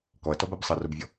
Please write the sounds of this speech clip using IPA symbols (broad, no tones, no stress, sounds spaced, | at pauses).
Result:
k ɔ ɐ̯ t ɔ b a b sˤ ʌ r o b vʲ ɔ